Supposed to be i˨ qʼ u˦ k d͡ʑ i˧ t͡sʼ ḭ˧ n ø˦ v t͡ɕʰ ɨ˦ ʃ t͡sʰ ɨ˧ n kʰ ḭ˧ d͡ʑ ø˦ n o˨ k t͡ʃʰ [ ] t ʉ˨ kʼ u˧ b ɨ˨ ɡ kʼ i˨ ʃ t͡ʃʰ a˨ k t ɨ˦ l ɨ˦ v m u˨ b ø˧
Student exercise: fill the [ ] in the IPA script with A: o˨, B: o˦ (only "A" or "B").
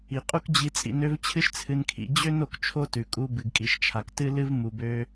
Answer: B